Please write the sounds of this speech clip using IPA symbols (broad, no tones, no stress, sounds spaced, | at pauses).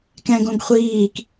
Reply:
k ɛ̃ ɡ õ ɡ χʷ iː k